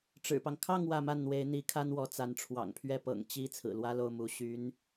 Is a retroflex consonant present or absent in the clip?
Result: present